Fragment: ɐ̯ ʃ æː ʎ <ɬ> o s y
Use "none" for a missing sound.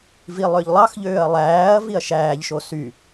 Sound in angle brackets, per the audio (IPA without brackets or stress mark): ʃ